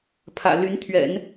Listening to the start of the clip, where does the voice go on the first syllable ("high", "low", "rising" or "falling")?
low